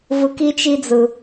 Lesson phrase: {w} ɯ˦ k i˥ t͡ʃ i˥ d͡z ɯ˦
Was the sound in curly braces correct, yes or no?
no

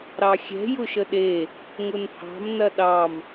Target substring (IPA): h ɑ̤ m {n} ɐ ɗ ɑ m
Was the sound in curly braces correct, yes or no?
yes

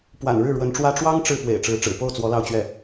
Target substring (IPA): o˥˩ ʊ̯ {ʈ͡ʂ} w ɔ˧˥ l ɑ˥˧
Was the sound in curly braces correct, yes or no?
no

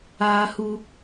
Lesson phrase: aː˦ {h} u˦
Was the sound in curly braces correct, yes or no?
yes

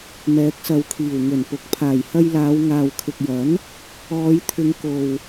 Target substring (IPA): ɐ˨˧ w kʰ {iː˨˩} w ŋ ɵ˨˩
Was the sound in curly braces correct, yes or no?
yes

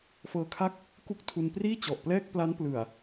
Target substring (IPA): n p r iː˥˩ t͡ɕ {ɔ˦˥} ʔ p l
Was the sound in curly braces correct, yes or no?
no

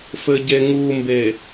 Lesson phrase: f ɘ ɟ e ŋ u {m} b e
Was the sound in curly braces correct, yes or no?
yes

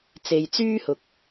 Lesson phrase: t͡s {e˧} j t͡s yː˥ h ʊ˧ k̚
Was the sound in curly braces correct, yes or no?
yes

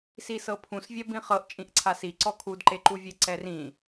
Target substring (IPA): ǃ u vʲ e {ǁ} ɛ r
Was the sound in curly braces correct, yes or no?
no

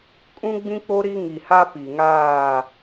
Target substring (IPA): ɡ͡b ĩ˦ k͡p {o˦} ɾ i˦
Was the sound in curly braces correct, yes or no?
yes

